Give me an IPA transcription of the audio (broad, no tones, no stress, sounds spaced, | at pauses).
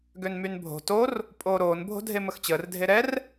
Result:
ɡ ø n m y n bʱ o̤ t o r | pʼ oː ɾ oː n bʱ o̤ dʱ e m ə x t͡ɕ əː r dʱ e ɾ ɛ r